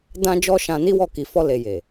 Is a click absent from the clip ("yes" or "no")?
yes